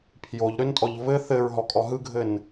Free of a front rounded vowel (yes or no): no